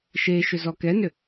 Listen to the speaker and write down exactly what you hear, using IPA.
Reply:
ʃ e ʃ ʏ z ɔ k ɛ n ʏ

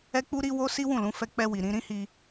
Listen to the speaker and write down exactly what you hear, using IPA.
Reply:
ɛ˦ k͡p u˦ ɾ i˦ w o˦ s i˦ w ũ˦˨ l ũ˨˦ f ɛ˧ k͡p ɛ˧ w i˨ ɾ ĩ˧ ɾ ĩ˦ h i˧

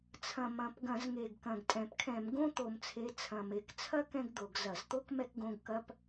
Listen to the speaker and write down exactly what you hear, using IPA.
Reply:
t͡sʰ ɐ̃˨˩ m ɐ̃˨˩ p ɡ ɐ̃˧˩˧ z ŋ e˨˩ ɡ k ɐ̃˨˩ ɡ tʼ ɛ̃˨˩ p kʰ ɛ̃˧˩˧ m ɡ õ˥ t̪ o˨˩ m t͡sʰ e˨˦ t͡sʰ ɐ̃˨˩ m e˨˩ k t͡sʰ ɐ˥ k ɛ̃˥ ɡ d̪ o˧˩˧ ɡ z ɐ˧˩˧ z t̪ o˥ k m ɛ˥ k ɡ õ˧˥˧ ɡ k ɐ˥ p

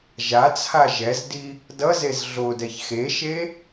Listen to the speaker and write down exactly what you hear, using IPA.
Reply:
ʒ a t͡sʰ a ʒ ɛ z d i | d ʌ z e z ɮ o d ɛ ç x e ʃ e

